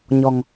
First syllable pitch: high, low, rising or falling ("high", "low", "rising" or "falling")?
low